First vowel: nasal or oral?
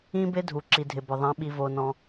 nasal